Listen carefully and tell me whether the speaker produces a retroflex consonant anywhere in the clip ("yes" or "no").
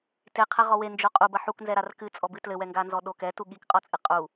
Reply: no